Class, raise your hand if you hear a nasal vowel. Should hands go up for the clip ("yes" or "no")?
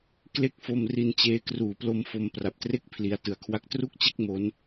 no